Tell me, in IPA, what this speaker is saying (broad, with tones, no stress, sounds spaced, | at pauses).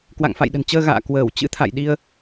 k w a̰˧˨ ŋ f a̰˧˨ j ɗ ə̤˨˩ n t͡ɕ əː˧ ɣ a̰ː˧˨ k w əː˧˩ w t͡ɕ ɨ̰˧˥ t̪ʰ a̰˧˨ j ɗ i˧ ə̯